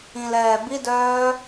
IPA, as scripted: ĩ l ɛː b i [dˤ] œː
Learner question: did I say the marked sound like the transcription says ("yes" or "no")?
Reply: no